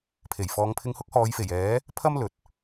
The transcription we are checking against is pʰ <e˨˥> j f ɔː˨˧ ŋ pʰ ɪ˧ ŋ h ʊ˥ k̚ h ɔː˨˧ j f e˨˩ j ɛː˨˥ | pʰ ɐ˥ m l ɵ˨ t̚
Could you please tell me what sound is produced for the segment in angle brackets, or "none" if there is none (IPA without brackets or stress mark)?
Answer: e˨˩